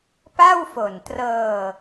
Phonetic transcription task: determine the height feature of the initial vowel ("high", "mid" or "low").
low